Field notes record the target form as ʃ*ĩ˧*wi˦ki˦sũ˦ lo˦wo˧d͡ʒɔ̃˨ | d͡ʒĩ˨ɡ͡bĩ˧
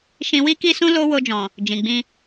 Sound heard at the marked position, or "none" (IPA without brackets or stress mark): ĩ˧